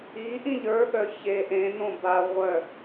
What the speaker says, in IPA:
i ʔ ĩ ʎ ə˞ ɠ œ ç e ʔ ẽ n õ b a ʁʷ œ

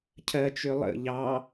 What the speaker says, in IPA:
cʰ ɜ t͡ʃ ø lˠ ə̰ ʎ ɑ

